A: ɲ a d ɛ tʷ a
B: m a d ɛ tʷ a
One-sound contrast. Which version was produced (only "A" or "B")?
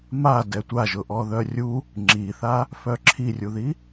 B